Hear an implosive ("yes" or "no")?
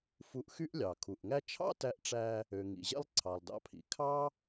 no